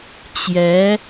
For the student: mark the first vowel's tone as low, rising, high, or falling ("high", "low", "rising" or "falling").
rising